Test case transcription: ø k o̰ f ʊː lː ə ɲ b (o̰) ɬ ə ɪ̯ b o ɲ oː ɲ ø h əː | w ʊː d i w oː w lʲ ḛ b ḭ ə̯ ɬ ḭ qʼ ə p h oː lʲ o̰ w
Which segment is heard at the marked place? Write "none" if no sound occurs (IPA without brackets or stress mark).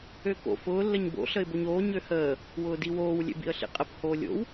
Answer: o̰